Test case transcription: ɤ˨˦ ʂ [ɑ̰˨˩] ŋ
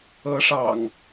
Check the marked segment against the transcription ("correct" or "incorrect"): correct